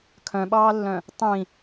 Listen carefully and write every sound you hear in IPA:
kʰ œ̃ ɓ ɑː lː œ̃ | tˤ ĩ

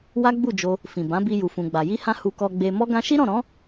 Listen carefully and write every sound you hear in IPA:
w a˦ ɡ͡b u˦˨ d͡ʒ o˧ | f ĩ˨ b ã˨˦ b i˧ j u˨ f ũ˨ ɡ͡b a˨ j i˧ h ã˧ h u˧ k ɔ˧ ɡ͡b e˧ m ɔ˦ ɡ ã˦ ʃ i˦ ɾ ɔ̃˦˨ ɾ ɔ̃˨˦

